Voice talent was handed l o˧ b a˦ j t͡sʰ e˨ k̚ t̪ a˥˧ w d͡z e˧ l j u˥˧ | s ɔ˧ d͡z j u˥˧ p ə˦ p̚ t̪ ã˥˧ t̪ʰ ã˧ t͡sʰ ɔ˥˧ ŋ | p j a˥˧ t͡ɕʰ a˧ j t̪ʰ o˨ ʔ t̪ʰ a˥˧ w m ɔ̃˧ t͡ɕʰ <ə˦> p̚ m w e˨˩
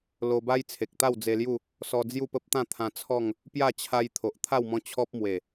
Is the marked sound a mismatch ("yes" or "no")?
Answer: yes